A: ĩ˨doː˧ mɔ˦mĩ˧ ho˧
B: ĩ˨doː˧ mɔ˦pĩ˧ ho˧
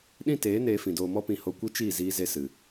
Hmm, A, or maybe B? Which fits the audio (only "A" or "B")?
B